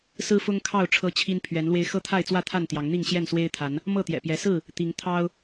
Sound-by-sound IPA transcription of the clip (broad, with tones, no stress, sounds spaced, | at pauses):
s ɹ̩˦ f ʊ˦ ŋ kʰ ɑ˥˨ ʊ̯ ʈ͡ʂʰ ɤ˦ t͡ɕʰ i˦ n pʰ ɥ ɛ˨˦ n l w e˧ ɪ̯ x ɤ˥˨ t̪ʰ a˥˨ ɪ̯ t͡s w ä˥˨ t̪ʰ a˥˨ n t̪ j ɑ˨˦ ŋ n̪ i˥˨ ŋ ɕ j ɛ˥˨ n s w e˦ ɪ̯ t̪ʰ a˨˦ n | m ɤ˥˨ t̪ j ɛ̰˨˩ p j ɛ˨˦ s ɹ̩˥˨ | t̪ i˨˦ ŋ t̪ʰ ɑ˦ ʊ̯